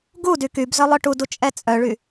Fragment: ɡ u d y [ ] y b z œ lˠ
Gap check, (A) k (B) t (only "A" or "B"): A